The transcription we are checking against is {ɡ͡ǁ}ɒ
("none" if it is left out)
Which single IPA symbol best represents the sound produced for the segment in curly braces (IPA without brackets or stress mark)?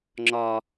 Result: ŋ͡ǁ